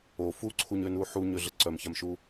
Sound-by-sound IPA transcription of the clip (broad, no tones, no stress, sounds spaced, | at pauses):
o f u ǀʰ u ɲ ø n u ħ u ɲ ø ɮ ə ǀ œ m ç a m ʃ u